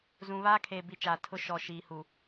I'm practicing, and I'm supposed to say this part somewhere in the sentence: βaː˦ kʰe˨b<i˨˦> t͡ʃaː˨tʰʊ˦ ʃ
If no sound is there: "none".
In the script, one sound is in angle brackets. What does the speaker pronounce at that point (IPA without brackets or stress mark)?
i˨